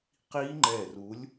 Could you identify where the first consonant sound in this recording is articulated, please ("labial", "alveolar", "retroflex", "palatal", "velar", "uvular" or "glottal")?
uvular